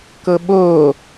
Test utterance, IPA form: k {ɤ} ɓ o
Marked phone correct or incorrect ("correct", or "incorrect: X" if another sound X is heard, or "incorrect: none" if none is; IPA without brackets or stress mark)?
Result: correct